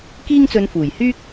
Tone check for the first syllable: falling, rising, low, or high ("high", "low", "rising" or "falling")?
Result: high